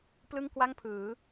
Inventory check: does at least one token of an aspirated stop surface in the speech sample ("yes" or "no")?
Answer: yes